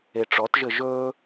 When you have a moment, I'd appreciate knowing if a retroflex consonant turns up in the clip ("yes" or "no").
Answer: yes